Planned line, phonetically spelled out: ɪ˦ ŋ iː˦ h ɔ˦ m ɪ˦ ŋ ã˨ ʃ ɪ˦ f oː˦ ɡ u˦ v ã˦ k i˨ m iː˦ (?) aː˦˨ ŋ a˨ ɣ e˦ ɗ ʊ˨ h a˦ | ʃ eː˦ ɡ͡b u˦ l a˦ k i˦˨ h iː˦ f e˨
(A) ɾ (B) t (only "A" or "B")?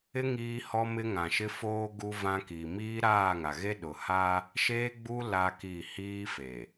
A